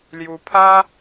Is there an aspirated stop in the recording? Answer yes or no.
yes